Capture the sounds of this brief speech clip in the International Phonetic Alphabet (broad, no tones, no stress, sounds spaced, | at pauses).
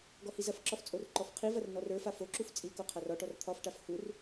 ɡ ɔ h i z ɐ f ǁ ɒ f t͡sʼ o r ǃ ɔ f qʰ i v ɐ r n ɔ r ə˞ f a f o ǁ u f t͡sʼ i k o qʰ a r ɒ ʈ ɔ r t̪ʰ ɒ f ʈ a f h u r